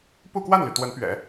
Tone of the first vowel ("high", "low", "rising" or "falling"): falling